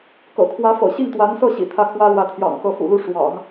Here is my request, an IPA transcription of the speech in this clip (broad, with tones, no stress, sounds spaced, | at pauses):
k ɤ̰˨˩ kʰ w ä˧˥ f ɤ̰˨˩ ɕ i˥˩ ŋ t̪ w a˧˥ n s ɤ˥˩ ɕ ḭ˨˩ t̪ʰ ä˥˩ kʰ w ä˥ l w ä˧˥ t̪ʰ j ɑ̰˨˩ ŋ k ɤ˧˥ f ṵ˨˩ l u˥˩ ʂ w ɑ̰˨˩˦ ŋ